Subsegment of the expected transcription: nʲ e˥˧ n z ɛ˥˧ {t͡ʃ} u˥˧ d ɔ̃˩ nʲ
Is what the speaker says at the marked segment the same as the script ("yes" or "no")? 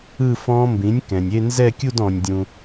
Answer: no